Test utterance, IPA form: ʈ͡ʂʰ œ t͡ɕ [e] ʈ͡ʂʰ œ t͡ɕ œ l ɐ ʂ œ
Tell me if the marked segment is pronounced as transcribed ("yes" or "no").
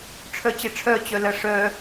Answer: yes